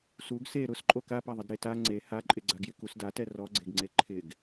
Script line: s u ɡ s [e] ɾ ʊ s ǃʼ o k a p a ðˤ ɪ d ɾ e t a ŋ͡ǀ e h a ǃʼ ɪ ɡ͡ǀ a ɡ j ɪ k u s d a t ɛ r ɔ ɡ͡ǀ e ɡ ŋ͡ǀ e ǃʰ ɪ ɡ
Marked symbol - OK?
yes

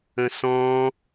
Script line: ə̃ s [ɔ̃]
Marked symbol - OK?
yes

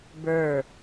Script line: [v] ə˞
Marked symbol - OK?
no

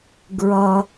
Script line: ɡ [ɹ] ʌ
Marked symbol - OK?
yes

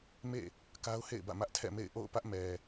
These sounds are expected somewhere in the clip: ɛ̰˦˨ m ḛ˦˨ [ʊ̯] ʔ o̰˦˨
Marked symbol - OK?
no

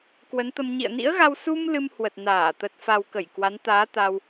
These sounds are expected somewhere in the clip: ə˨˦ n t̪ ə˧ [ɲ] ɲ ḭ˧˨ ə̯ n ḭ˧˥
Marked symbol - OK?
no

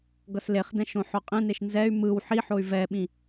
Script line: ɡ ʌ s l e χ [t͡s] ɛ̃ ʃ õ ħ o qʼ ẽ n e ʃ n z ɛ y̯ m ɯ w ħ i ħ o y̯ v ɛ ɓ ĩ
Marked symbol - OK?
no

